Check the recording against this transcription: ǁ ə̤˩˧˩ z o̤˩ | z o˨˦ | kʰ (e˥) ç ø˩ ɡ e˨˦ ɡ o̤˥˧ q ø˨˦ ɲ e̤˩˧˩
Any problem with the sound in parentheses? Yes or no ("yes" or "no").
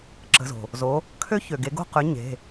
yes